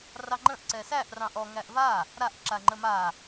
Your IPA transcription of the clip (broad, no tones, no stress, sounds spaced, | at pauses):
r ɑ ŋ͡ǃ ə̃ ʔ ǀ ɛ s æ ʔ r ɑ̃ ʔ ɔ ŋ æ ʔ v a | ɾ a ʔ ǁ a ŋ͡ǃ ə m a